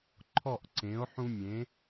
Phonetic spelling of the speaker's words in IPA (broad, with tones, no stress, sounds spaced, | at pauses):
ǃʰ ɔ˥˨ ʔ ǀ ẽ˩˥ o̯ ħ ũ˦ mʲ ẽ˩˥